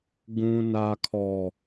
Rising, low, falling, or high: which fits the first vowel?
low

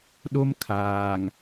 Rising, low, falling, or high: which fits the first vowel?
high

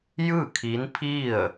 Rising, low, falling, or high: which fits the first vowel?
falling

